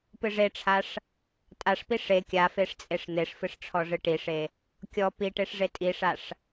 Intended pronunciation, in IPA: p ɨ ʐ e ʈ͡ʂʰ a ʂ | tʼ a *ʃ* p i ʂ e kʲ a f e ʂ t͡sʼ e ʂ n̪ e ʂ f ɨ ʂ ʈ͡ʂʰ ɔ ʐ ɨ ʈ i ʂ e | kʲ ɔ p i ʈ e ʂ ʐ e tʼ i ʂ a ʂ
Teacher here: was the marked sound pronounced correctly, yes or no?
no